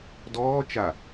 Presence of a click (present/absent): absent